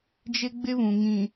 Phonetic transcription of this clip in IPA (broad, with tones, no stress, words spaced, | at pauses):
d͡ʒɪ˦ɡ͡bɪ˦βũ˨ ŋĩ˨